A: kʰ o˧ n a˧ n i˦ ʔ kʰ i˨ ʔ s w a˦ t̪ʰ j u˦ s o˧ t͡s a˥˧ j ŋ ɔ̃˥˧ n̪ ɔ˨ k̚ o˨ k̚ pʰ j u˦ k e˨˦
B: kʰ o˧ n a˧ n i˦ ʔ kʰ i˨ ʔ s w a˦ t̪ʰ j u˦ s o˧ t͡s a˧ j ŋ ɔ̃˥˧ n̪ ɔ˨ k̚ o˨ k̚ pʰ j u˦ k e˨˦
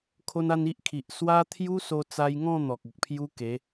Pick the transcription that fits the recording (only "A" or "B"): B